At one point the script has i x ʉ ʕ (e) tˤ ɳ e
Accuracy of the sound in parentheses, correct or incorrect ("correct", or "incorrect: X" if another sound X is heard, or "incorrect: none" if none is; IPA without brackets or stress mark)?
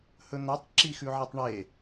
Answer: correct